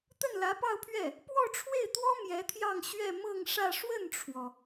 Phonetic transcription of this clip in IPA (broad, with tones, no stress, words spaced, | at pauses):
t̪ə˥˩nlä˧˥pɑ˥˧ʊ̯pʰɥɛ˥˩ | pwɔ˥˧ʈ͡ʂʰwe˥˩ɪ̯t̪wɔ˥ mjɛ˧˥t̪ʰjɑ˥˧ŋɕɥɛ˥˧ mɤ˥˧ŋʂä˥˧ ʂwə˥˩nʈ͡ʂʰwɔ˩